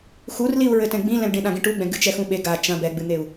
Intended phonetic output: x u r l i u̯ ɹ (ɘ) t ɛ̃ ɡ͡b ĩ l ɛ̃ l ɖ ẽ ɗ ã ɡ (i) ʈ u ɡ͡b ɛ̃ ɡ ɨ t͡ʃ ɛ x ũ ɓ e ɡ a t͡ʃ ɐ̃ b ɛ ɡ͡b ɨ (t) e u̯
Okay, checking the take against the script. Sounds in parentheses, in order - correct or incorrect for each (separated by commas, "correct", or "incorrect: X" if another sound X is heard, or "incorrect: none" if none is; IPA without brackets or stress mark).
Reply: correct, incorrect: ĩ, incorrect: n̪